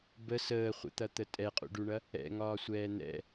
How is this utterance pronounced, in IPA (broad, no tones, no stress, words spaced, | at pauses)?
bə səːχʷə̰t̪ɐt̪ə tʼɛqʼṵɖuɳɐ | ɛ̰ŋɒːsʷɛː n̪ɛ̰